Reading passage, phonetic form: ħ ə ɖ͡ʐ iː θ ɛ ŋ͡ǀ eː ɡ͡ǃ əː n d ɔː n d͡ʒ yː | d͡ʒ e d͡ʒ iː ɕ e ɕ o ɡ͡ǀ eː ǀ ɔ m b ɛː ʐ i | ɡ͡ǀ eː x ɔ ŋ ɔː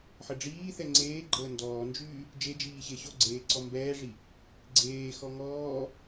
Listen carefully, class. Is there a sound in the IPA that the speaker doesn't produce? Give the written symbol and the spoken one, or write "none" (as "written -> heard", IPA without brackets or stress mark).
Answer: none